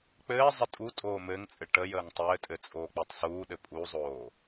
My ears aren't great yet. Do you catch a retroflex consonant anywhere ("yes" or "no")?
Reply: yes